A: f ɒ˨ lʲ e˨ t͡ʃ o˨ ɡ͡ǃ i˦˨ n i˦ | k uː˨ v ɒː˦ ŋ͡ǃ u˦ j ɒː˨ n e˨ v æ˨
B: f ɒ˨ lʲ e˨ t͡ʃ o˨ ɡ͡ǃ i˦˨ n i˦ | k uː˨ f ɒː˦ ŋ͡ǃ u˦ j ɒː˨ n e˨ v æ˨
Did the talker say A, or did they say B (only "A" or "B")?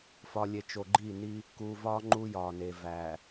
A